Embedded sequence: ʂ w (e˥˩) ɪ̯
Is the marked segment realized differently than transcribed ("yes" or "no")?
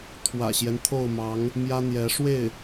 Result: no